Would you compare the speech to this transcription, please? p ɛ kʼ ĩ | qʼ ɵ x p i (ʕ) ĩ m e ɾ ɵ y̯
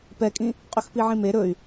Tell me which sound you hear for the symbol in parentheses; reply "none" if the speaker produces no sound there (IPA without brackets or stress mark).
ʕ